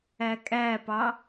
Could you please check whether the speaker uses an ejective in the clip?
yes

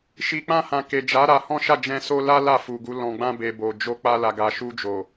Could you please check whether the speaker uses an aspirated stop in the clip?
no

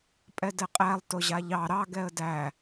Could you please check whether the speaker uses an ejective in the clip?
yes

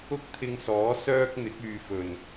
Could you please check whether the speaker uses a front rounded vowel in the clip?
yes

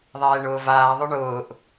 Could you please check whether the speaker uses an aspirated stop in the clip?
no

